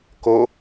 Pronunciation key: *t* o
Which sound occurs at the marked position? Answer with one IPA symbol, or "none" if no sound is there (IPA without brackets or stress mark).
k